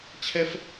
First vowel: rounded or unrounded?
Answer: unrounded